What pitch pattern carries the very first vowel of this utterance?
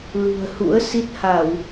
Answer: low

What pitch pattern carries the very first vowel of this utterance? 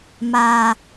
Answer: low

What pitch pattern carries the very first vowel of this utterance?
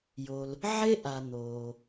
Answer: low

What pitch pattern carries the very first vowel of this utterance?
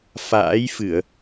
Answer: rising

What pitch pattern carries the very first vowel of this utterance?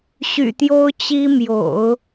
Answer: low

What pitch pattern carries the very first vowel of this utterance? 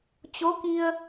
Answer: rising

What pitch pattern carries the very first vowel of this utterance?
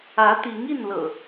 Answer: rising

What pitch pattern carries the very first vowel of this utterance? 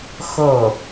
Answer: falling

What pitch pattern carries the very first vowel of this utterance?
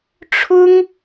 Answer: high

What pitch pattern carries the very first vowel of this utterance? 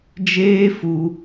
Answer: high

